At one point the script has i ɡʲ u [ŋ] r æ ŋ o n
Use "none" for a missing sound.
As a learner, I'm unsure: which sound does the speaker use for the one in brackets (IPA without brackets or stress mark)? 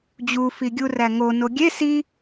none